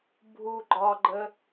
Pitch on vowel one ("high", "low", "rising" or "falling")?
low